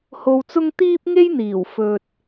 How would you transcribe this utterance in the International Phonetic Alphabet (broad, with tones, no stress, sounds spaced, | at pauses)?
h o˧ w t͡s ʊ˥ ŋ t̪ iː˥ p̚ ŋ e˥ j n̪ iː˨˩ w f ɵ˨ t̚